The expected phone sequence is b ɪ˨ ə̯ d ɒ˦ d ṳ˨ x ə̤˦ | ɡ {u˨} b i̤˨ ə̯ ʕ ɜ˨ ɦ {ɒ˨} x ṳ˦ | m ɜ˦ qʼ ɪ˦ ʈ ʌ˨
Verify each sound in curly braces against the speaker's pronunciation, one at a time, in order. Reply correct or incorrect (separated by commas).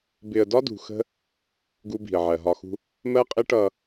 incorrect, correct